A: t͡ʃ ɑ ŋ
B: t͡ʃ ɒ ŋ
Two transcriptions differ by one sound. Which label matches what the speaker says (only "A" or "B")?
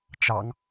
A